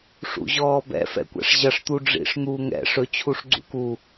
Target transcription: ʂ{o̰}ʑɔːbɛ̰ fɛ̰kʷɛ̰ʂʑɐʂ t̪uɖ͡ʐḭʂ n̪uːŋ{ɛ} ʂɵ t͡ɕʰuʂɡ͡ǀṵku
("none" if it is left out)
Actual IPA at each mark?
ṵ, ɛ̰

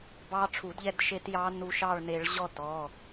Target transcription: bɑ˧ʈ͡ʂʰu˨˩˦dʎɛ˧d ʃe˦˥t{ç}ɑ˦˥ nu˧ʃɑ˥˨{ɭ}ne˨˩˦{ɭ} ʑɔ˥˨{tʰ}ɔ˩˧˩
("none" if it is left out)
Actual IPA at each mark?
j, ɭ, ɭ, t

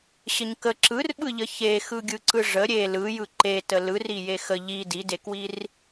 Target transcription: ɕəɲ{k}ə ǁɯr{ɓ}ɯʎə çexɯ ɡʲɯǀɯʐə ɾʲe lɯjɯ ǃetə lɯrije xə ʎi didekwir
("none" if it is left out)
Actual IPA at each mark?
k, ɓ

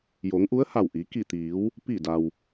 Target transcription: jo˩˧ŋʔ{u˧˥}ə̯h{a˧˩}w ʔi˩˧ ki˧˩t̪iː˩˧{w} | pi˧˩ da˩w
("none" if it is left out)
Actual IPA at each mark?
u˧˥, a˧˩, w

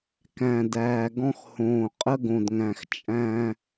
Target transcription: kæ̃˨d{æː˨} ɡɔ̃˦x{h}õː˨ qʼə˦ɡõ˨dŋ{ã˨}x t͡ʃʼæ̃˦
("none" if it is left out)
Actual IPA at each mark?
æː˨, h, æ̃˨

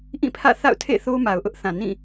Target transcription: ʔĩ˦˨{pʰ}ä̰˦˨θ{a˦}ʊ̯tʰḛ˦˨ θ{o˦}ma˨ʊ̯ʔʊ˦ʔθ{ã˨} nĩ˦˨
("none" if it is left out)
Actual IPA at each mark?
pʰ, a̰˦˨, o˦, ã˨

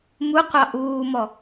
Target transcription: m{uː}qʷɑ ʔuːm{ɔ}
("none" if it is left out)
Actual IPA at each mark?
u, ɔ

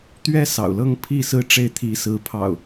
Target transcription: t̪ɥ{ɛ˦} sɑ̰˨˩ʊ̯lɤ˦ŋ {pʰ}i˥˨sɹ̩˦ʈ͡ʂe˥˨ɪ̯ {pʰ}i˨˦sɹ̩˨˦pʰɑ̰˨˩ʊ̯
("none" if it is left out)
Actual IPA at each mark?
ɛ˦, pʰ, t̪ʰ

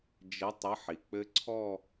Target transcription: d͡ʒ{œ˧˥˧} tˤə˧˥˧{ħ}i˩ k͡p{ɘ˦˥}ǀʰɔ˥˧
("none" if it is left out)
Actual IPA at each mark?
ə˧˥˧, ħ, ɘ˦˥

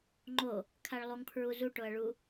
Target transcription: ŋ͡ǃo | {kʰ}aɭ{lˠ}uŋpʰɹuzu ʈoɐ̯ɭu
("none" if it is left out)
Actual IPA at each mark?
kʰ, lˠ

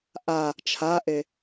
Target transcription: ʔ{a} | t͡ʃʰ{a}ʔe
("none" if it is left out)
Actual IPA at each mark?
a, a

